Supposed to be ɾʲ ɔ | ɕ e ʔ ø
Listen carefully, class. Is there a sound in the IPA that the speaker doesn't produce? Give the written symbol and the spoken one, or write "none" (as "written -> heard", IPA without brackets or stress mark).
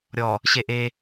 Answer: ø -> e